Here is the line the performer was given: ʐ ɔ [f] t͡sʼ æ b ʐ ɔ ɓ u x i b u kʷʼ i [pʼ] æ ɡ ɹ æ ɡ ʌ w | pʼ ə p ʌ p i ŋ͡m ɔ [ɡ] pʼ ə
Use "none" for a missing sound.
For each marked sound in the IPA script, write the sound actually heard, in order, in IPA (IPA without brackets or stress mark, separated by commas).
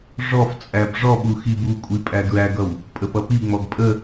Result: f, pʼ, ɡ